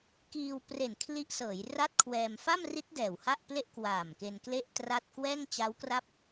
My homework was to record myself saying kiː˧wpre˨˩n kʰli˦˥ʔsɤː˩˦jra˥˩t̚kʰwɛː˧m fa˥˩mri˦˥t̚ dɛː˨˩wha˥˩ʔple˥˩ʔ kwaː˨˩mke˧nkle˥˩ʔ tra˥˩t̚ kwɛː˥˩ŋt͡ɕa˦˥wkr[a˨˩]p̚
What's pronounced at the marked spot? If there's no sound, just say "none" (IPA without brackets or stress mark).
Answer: a˥˩